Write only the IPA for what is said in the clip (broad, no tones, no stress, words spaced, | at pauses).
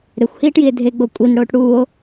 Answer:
ɾexʷhiːʈjie̯ dʱeɡ͡bo kʷʼinɽoːʈ ɽuːo̯